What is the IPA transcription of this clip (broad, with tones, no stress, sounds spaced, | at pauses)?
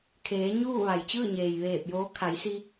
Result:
kʰ eː˩˧ ɲ uː˥˨ ʋ a˩ j t͡ɕ ɯː˥˨ ɲ eː˩ j ʋ eː˧˩ p̚ j oː˧˥ kʰ a˩˧ j s i˧